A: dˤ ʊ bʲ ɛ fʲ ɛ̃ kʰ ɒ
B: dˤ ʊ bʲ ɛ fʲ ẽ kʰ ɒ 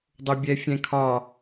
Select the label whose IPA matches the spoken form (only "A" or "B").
A